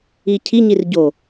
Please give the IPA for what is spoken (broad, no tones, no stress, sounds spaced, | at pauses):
i cʰ i ɲ i r ɟ o